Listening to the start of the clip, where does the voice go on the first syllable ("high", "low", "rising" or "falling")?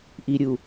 low